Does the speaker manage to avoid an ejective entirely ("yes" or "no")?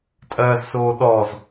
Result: no